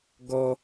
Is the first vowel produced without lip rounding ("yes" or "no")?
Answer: no